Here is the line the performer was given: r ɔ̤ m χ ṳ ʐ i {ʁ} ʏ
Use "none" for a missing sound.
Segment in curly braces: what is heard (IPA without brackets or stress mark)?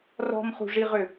ʁ